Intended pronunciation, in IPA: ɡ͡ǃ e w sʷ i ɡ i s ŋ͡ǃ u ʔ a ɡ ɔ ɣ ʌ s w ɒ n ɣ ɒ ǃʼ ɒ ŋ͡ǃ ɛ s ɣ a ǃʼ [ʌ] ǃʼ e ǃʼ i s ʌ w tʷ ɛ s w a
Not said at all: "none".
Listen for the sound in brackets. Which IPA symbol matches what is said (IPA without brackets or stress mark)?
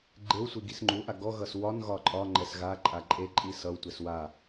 a